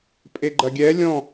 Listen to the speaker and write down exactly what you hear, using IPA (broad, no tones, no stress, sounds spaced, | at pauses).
pʼ e ɡ͡ǃ ɐ ɡʲ ɛ lʲ ɔ̃